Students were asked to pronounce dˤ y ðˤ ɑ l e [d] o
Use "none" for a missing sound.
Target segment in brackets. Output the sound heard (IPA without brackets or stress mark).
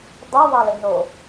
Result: n